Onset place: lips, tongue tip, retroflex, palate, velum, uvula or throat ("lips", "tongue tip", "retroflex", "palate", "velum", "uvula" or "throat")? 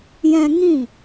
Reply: palate